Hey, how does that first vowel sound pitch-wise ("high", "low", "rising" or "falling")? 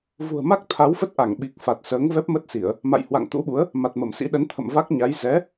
low